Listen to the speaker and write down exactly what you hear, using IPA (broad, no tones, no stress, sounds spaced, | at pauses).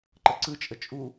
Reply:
ǃ ə ǀ ɯ t͡ʃʼ ə t͡ʃʼ u